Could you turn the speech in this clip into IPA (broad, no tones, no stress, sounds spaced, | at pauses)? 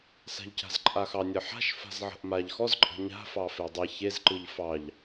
s a̤ ʎ c a̤ z ǃʼ a x ɑ nʲ ə ħ a̤ ʃ f a̤ z ʕ ə̤ ʔ m a ʎ x ɔ z ǃʼ ə̤ ɲ a̤ f ɑ f e dˤ i ç e z ǃ ɯ ʎ f ɑ ʎ